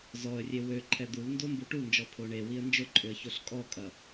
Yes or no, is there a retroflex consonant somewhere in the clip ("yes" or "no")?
yes